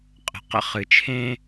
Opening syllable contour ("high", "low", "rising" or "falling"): low